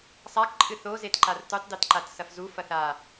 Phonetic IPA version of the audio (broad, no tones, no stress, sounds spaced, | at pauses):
sˤ a k ǃʼ ɨ θ o z e t ǃ a r t u tˤ d e t ǃ a t s ɐ f z u f ɐ θ a